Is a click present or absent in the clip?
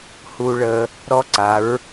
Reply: present